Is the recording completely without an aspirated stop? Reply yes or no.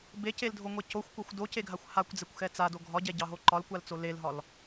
yes